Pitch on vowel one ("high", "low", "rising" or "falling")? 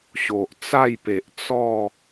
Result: low